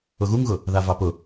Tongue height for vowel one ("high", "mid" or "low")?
high